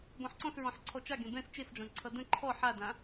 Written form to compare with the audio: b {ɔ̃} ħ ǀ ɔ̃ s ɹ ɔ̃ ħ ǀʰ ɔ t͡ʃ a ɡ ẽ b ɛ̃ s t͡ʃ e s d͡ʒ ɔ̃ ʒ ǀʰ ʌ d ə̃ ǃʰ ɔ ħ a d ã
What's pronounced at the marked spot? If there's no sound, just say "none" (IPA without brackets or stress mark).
ɔ̃